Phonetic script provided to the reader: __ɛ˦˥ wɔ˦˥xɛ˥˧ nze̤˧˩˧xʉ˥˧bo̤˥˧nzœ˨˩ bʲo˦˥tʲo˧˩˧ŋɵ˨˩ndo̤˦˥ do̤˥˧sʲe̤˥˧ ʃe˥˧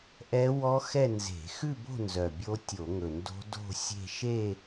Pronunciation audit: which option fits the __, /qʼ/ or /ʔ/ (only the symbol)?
ʔ